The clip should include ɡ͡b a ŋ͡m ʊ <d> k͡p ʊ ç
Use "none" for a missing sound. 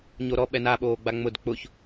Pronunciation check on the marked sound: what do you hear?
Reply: d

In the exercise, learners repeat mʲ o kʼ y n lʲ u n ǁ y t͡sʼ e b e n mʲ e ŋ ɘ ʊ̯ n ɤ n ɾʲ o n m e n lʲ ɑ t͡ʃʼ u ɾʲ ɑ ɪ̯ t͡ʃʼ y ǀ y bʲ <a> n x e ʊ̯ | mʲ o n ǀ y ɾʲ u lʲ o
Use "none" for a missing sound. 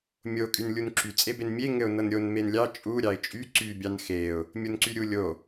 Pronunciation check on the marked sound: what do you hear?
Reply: ɑ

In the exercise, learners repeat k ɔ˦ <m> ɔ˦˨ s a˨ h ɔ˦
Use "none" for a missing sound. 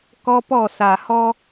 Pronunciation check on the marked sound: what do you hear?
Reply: p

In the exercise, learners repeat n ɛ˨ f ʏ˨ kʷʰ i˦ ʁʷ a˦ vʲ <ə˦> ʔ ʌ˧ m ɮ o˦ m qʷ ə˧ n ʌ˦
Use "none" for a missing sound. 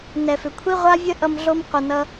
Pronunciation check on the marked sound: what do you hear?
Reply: ə˦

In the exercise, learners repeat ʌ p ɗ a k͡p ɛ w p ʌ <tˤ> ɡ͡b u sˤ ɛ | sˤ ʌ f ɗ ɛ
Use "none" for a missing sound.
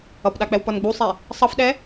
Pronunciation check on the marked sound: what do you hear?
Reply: n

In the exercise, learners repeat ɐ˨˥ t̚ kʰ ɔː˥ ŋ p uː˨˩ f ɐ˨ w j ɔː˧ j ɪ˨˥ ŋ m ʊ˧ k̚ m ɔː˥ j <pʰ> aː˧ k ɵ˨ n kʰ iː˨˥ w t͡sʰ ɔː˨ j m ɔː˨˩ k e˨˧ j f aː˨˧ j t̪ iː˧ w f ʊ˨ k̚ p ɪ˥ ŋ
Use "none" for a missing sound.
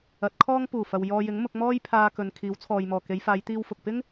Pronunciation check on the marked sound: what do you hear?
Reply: pʰ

